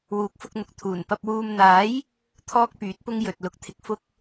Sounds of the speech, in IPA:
wuː˨˥k̚fʊ˧k̚n̪ʊ˨˥k̚ t̪ʰuː˨˩npɐ˧p̚ wuː˨mn̪aː˨˥j | t̪ʰɔː˥k̚pyː˨˥t̚pʊ˥ŋ jɵ˨t̚ lʊ˨˥k̚t̪ʰɪ˨k̚ fʊ˥k̚

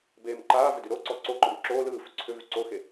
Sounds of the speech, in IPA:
beːmǃaːvʏ dyɾoǀɔ ǀoǃɔm ǁoː lɯːfʏ ǀʰʏvy ǀoxe

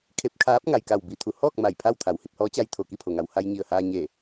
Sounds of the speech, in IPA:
kʰe˧˥p̚kʰaː˧˥p̚ ŋa˩jka˧˩w bi˧˩t̪ʰu˩˧hɔː˥˨k̚ ma˧˩jpʰa˥˨w t̪ʰa˩˧whi˧p̚hɔː˧˥t͡ɕa˧j t̪ʰo˧˩ki˥˨pʰo˩ŋa˩w ha˧jɲi˧˩ə̯haː˧ɲe˧˩

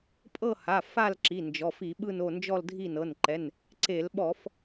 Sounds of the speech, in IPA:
pʼɤ˦˨ha˩˧˩ fa˦˨l ǁi˩˧˩ nd͡ʒɔ˩˧˩fi˧˩˧ɓɯ˦˨n o˦˨ nd͡ʒɔ˦˨ldʱi˦˨nɤ˩˧˩nǃɛ˩˧˩n | ǀe˧˩˧lɓɔ˧˩˧f

